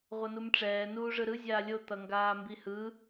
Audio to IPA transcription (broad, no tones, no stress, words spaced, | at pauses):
ʁʷʌnumʈ͡ʂɛː nuːʐɯɾɯ zʲaːlʲo t̪ʌŋɡaːmbihɯ